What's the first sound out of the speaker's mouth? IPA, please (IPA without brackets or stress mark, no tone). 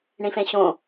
ɳ